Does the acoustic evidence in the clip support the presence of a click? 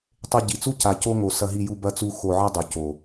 no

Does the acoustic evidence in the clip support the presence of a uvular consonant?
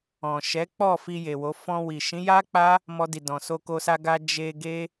no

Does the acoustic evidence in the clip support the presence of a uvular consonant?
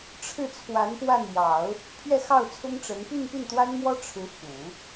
no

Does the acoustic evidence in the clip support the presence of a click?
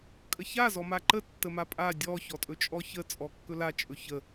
yes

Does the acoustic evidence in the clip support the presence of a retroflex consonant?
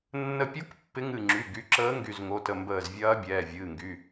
no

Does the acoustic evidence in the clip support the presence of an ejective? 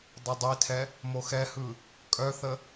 yes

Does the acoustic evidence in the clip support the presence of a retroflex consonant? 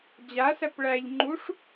yes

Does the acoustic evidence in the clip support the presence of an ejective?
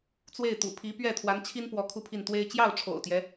no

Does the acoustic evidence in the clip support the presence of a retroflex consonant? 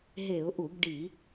yes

